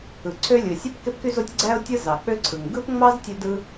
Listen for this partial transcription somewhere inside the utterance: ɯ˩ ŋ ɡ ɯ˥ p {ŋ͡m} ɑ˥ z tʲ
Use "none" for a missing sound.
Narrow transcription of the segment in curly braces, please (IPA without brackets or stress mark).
ŋ͡m